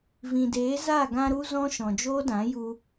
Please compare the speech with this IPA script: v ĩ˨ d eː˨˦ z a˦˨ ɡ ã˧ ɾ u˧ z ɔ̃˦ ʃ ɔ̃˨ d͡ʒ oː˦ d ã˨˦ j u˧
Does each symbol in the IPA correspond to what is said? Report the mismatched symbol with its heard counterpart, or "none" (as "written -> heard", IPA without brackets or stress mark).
none